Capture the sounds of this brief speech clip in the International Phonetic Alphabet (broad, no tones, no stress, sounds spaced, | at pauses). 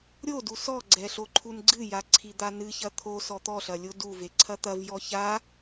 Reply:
ɾʲ o d u s ɔ ɡ͡ǀ ɛ ɬ o ǃʰ u n ɡ͡ǀ ɨ j a ǀʰ i d̪ a n ɨ ç ɐ t̪ʰ o s ɔ t̪ ɔ ɬ ɐ lʲ o d u v e ǀʰ ɐ t̪ ɐ v j ɔ ç a